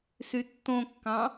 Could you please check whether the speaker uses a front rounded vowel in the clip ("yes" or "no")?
yes